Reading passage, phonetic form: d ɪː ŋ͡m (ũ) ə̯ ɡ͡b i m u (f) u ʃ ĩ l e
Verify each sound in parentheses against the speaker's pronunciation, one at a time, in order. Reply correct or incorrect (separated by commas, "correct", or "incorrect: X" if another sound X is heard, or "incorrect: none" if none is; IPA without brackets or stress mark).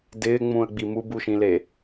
correct, incorrect: b